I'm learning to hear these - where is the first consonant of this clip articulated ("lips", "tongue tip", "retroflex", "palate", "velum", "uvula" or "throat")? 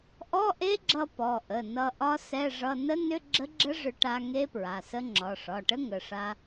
throat